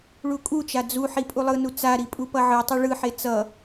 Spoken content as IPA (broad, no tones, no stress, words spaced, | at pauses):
ɭukʼut͡ʃa d͡zuħi pʼulˠɯnu t͡saɾi pʼupʌʕɯtˤɛ ɭɯħe t͡sʌ